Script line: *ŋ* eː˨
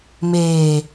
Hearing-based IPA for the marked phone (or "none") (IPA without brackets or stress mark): m